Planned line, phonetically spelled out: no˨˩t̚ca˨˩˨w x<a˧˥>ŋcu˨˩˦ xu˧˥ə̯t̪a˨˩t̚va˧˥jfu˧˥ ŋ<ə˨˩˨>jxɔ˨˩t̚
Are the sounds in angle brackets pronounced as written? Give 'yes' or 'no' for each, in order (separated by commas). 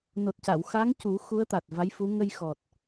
yes, no